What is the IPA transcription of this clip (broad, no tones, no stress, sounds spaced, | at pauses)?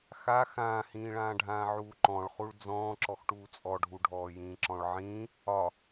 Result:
x a x ãː h ĩː ɭ ãː ɖʱ ãː ʕ uː ǃ ɔ̃ ɭ χ u ɭ d͡z ɔ̃ː ǁ ɔ x ʈ uː t͡sʼ ɔ ɖʱ u ɖʱ ɔː j ĩː ǁ ɔ̃ ɭ ʕ ĩː | ɒ